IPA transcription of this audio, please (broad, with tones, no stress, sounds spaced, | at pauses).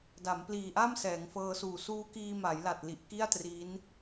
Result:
d a˩˦ m p l iː˨˩ ʔ a˥˩ m s ɛː˩˦ ŋ f ɤː˧ s uː˨˩ s uː˦˥ k iː˧ m a˩˦ j l a˨˩ t̚ l i˨˩ ʔ k i˥˩ a̯ t r iː˦˥ n